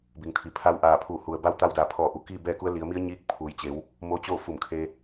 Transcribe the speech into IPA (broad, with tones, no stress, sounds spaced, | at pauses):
b i˩ ŋ t̪ʰ i˩ pʰ a˧˥ w ʔ aː˧˩ pʰ uː˧˩ h u˩ ə̯ b a˧˥ w t̪ a˧ w d aː˩ pʰ ɔː˧˩ ʔ u˩ k iː˥˨ b ɛː˥˨ k u˧˥ ə̯ l i˩˧ ə̯ m i˧˥ ə̯ ɲ iː˧˥ k̚ pʰ uː˩˧ j t͡ɕ e˩˧ w | m o˧ t͡ɕ oː˥˨ f u˧˩ m kʰ e˧